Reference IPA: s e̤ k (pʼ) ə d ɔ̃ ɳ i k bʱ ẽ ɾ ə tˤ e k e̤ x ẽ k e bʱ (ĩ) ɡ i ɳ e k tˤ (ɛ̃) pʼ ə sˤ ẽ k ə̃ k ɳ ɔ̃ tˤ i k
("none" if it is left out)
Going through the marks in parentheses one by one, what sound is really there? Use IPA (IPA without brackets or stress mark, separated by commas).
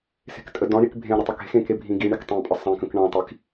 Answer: tʼ, ĩ, ẽ